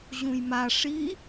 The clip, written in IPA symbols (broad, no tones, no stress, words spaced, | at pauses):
ʑũjma ʂi